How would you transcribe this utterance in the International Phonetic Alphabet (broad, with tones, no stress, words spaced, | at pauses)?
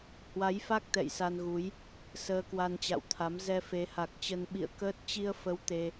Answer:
hwa˨˦jfa˦˥k̚ t̪ɛ̰˧˨jsa˧nɣu˨˦j | səː˧kwa˧nt͡ɕa̰˧˨wt̪ʰa˨˦m zɛ˧fe˨˦ha˨˩k̚t͡ɕə˧n ɓḭ˧˨ə̯kəː˦˥t̚ t͡ɕi˧ə̯fə˨˦w t̪e˧